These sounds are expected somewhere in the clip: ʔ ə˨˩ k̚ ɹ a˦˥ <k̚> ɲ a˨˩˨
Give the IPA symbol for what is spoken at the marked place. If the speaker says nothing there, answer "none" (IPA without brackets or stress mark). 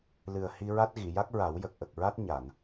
t̚